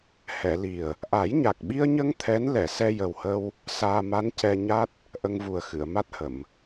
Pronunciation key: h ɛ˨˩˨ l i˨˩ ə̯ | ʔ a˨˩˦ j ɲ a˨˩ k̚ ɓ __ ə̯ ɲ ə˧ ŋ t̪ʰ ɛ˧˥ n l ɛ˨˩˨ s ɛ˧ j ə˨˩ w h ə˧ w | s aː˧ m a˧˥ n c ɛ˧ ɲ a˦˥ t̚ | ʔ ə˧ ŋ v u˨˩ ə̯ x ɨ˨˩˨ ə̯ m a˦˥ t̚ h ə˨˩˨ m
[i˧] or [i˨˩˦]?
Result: i˧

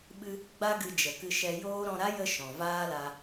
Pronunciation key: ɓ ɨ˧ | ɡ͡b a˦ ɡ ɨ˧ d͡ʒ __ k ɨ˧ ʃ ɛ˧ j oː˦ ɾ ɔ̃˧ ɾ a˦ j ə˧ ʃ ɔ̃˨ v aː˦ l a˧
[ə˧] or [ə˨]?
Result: ə˨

